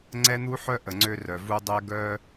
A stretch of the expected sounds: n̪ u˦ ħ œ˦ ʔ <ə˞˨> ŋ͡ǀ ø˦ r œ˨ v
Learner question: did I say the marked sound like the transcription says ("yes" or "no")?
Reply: no